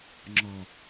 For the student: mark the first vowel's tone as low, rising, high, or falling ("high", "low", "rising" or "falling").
low